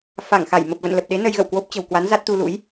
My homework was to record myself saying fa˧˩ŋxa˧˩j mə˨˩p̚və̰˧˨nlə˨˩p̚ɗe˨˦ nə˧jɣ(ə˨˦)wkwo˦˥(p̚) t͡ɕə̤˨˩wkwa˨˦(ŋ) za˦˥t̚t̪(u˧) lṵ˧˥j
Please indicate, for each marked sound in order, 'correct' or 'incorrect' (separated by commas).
incorrect, correct, incorrect, correct